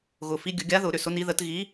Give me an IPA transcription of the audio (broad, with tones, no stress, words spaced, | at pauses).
ɣʊ˨˩˦fi˧˥ ɡʲə˨˩˦ɡʲa˧˥ðʊ˨˩˦ ɾʏ˨˩˦sʊ˧˥ni˧˥ ðə˧˥t ɣi˧˥